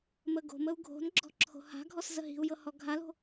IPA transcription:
m ə ɡ o̤ m ə u̯ ɡʱ o̤ n ɡ͡ǁ ɔ̤ ǁʰ o̤ h a̤ ɡʱ ɔ s z ə ɦ i̤ u̯ j ɤ h ɔ ɡʱ a l o̤

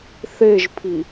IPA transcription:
θ e ʒ pʰ i

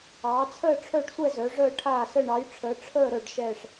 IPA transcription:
ɑː˨˦ t͡sʰ əː˥˧ ʈ͡ʂʰ œ˥˧ ɖ sʷ ɛ˥˧ z œ˨˦ ʐ əː˥˧ ʈʰ aː˥˧ s ə˥˧ ɳ ɑ˨˦ j ʈ͡ʂʰ əː˨˦ ʈ͡ʂʰ əː˥˧ ɾ œ˥˧ ɖ ʃ ɛː˥˧ ʂ

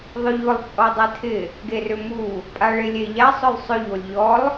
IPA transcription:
ðˤ ʊ ʎ ʊ lˠ t͡sʼ ɔ dˤ e tʰ ɪ | ɡ e r ʏ m u | pʼ a ɭ ɪ lʲ e ʎ a sˤ ʊ lˠ sˤ ʏ ʎ o lʲ ʎ ɔ lˠ

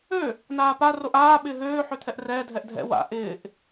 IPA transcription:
ø | n aː p a r o ʔ aː ɓ ɪː ɦ øː ħ ø t̪ʰ ɛ ʔ r ɛː dʱ ɛ ʔ dʱ ɛ̰ w a̰ ʔ ɪː ʔ

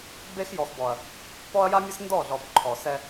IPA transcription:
b e˦ x j ɔ˨ x b ɔ˨ ɐ̯ | p ɔ˦ ɐ̯ j a˦ mʲ ə˦ s n d ɔ˦˨ ɮ ɔ˨ b ǃʰ ɔ˨ s ɛ˦

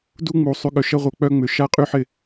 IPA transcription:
d u˦ ŋ͡m u˨ sˤ y˨ ɠ œ˨ ʃ ɐ˦ ʁʷ œ˧ k͡p œ˦ ŋ͡m ʏ˧ ʃ a˦ qʼ y˦ ħ ɪ˦˨

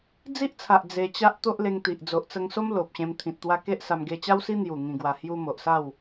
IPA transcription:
d͡z i˦ ʔ t͡sʰ a˨ ʔ d͡z e˧ t͡ɕ a˦ ʔ t̪ o˦ ʔ l e˧ ŋ t̪ i˨ ʔ d͡z o˨ ʔ t͡s ə˧ ŋ s o˦ m l o˨ p̚ ɕ ẽ˧ m t̪ʰ ĩ˨ t̚ t̪ w a˧ k e˦ ʔ s a˧ m ɡ e˧ t͡ɕ a˦ w s i˦ n̪ j u˨˩ ŋ ĩ˨˩ ɡ w a˨˩ h j u˧ m o˨ ʔ s a˥˧ w

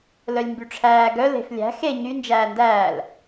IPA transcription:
l œ lʲ m b y ʈ͡ʂʰ æː ɡ œ l e̤ f lʲ æ̤ x e ɲ y n d͡ʒ æː n d æː l

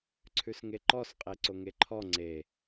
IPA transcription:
ǀʰ ʉ s ŋ e ǃ ɔ s qʼ e ǀ o ŋ e ǃʰ ɔ ŋ͡ǀ e

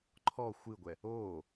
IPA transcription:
ǃʰ ɔ xʷ ɨ ɡʷ ɛ | oː

